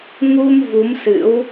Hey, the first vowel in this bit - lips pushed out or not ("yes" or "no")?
yes